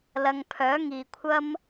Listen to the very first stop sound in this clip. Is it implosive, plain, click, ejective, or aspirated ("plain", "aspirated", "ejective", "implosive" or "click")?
aspirated